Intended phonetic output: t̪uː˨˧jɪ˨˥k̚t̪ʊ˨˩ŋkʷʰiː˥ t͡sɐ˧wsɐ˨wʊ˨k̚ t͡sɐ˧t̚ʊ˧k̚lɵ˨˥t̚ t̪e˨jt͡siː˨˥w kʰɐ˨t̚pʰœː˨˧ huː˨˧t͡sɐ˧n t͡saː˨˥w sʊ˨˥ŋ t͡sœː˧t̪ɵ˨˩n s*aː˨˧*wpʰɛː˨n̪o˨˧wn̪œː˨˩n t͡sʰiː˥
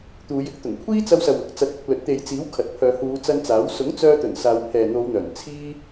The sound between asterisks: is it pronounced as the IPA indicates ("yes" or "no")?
yes